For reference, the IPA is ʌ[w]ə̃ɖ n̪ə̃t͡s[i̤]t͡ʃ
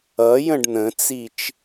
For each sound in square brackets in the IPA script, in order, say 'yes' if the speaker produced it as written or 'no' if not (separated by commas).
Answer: no, no